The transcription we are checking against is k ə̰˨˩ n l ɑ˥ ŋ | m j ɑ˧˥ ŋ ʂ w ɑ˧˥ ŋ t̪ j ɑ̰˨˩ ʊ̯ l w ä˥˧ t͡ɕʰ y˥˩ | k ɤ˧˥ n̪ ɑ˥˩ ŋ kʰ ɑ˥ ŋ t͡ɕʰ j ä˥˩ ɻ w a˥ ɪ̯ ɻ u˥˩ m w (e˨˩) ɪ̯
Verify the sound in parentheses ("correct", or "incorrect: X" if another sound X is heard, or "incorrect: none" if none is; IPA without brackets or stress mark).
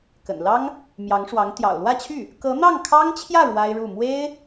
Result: incorrect: e˥